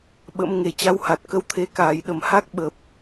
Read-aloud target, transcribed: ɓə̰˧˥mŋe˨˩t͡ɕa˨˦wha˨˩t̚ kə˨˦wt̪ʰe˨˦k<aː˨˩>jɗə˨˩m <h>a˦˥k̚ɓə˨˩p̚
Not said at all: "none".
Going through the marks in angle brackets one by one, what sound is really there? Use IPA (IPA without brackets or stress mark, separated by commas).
aː˨˩, h